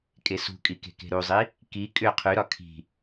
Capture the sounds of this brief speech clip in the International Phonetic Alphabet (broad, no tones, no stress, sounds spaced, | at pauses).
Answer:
kʼ e s ṳ kʼ i k e̤ k e̤ ɾ u zˤ i | k i kʼ ʏ qʰ y ɾ ɒ kʰ i̤